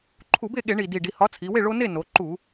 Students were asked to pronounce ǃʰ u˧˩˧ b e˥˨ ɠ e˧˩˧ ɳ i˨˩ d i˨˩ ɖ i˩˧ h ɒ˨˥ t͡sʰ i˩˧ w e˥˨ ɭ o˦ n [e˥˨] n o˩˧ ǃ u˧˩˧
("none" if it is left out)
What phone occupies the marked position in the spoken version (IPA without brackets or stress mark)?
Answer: e˥˨